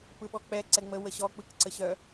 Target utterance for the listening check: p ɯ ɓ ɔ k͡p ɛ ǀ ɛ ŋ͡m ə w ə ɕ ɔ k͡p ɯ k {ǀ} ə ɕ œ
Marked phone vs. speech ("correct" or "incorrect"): correct